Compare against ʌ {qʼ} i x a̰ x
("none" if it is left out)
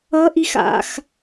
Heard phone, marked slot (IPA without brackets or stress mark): ʔ